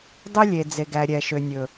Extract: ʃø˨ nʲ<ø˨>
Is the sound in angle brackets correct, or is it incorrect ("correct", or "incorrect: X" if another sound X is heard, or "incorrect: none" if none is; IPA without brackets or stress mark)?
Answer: incorrect: ɵ˨